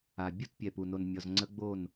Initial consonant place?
labial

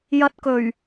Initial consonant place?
palatal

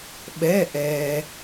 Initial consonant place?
labial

